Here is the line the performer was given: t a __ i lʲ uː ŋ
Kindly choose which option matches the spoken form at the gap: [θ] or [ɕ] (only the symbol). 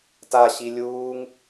ɕ